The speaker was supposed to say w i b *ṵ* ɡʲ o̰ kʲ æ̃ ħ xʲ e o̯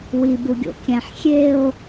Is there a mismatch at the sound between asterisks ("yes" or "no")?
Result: yes